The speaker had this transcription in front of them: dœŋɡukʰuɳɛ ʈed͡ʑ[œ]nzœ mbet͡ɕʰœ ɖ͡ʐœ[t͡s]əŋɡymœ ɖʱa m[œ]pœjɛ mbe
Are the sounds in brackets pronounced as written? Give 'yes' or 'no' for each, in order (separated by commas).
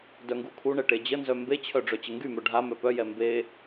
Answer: no, no, yes